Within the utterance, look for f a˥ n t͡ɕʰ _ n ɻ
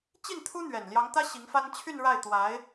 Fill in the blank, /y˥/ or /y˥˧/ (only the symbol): y˥˧